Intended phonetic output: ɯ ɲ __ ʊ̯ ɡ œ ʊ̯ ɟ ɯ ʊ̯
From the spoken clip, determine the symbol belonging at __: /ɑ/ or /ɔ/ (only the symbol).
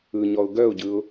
ɔ